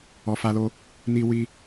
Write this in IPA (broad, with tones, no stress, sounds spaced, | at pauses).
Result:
ɔ˨ f a˧ l o˧ | n i˧ w i˧